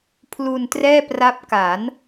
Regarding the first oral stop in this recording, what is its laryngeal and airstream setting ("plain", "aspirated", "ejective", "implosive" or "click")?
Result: aspirated